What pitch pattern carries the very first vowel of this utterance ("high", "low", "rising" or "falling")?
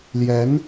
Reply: rising